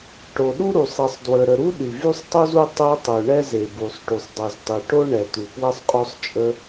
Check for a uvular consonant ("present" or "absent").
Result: present